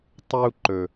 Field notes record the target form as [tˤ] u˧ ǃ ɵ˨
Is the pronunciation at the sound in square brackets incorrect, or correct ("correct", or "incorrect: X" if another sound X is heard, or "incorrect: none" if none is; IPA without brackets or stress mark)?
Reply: correct